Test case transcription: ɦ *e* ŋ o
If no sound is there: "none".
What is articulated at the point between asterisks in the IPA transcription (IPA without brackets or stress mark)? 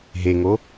e